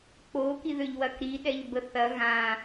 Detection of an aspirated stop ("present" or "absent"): absent